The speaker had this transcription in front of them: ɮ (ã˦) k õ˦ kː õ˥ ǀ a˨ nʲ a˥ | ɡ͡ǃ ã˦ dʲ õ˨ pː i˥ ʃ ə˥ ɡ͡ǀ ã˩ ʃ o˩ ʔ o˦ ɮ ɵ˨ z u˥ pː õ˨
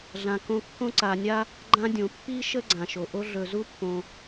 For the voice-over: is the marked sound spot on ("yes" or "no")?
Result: no